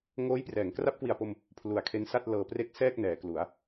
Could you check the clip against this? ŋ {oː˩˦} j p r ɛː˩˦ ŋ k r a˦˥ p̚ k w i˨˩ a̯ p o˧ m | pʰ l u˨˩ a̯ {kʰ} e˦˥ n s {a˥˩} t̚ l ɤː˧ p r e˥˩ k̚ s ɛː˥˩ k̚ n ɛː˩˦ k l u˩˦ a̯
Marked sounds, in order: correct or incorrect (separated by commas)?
incorrect, correct, correct